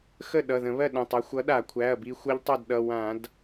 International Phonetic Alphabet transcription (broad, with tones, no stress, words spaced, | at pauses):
xə˥˨ɗʌ˩˧˩ðə̃˧˩˧βɜ˥˨ ɗə̃˩˧˩tˤa˨˥ xʷʌ˨˥ɗa˧˩˧kʷʰæ˩˧˩ɐ̯ bi˧xʷʌ˦˥ʎtˤʌ˥˨dɗʌ˩˧˩ wã˧˩˧d